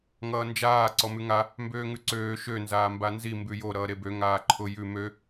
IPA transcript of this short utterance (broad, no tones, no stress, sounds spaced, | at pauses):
ŋ ʌː n d͡ʒ aː ǀ ɔ m ʉ ŋ a | m b øː ŋ ʉ ǀ øː ʃ ø n z aː m b a n z i m b ʉ j o ɾ ʌː ɾ e b ø ŋ aː ǃʰ ʊ j ʉ m ø